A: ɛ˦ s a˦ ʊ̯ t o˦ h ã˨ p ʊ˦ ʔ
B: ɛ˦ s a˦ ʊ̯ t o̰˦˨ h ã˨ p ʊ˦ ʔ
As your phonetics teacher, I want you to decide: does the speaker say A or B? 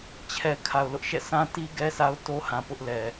A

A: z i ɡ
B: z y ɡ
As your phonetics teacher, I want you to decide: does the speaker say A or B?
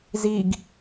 A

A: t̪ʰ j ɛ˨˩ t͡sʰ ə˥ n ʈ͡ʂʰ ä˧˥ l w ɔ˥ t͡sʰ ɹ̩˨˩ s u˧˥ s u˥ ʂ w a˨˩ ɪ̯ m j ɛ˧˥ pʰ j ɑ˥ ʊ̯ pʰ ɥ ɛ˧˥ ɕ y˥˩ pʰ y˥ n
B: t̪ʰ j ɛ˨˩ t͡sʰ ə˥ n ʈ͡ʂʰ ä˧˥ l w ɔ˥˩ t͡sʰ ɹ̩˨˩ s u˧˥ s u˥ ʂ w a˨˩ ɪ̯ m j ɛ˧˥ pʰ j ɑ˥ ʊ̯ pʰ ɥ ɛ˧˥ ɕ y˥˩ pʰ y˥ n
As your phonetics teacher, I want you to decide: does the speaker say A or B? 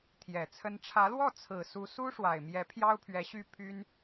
B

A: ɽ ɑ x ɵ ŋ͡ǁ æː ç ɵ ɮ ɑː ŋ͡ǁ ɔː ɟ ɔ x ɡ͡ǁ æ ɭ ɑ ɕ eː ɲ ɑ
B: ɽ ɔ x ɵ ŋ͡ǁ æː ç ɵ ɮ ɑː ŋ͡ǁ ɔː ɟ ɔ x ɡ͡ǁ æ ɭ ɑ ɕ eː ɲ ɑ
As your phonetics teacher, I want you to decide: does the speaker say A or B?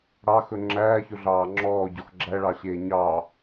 A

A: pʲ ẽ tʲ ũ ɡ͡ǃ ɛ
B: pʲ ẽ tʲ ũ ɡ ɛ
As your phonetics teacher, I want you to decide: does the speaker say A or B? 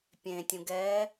B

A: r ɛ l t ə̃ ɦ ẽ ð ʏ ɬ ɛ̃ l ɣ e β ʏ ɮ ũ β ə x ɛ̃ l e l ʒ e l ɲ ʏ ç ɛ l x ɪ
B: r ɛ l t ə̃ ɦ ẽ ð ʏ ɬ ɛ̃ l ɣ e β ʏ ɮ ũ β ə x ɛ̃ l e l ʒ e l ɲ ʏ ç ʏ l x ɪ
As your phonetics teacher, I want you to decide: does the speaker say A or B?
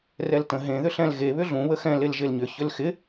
B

